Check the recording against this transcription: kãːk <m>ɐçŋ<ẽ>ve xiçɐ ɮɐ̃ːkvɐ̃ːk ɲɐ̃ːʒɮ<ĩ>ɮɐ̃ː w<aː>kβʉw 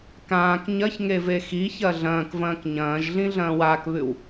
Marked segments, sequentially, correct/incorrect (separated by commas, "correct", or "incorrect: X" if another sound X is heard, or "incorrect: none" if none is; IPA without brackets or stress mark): incorrect: ɲ, incorrect: e, correct, correct